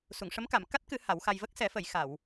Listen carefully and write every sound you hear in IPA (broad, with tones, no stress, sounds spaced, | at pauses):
s u˨˩˨ ŋ ʂ ə˧˥ m k a˨˩˨ m k a˦˥ t̚ k ɨ˨˩˦ h a˨˩˦ w x a˧ j v ə˦˥ k̚ s ɛ˨˩˦ f ə˨˩˨ j x a˨˩˨ w